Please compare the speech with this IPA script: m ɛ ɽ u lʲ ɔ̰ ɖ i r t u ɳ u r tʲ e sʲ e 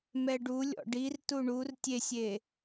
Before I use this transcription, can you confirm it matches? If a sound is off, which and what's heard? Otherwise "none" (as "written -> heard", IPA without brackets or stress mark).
ɽ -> ɖ